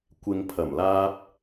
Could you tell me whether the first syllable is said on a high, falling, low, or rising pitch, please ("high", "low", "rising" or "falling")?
low